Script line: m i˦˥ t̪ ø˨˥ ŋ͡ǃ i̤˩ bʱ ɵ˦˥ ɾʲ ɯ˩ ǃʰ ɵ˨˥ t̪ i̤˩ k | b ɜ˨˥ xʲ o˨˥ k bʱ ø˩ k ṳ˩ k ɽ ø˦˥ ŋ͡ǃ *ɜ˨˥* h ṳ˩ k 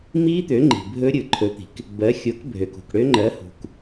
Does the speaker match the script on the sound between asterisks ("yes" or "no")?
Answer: yes